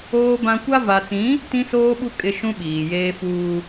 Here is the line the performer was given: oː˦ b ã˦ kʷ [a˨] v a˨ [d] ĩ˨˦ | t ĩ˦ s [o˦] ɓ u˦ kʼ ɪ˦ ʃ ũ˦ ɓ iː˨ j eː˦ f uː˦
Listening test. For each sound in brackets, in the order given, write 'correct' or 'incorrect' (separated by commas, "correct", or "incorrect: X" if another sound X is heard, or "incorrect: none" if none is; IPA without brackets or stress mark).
incorrect: a˦, incorrect: t͡s, incorrect: oː˦